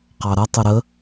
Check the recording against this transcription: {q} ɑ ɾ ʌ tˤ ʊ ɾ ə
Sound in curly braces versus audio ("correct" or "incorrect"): correct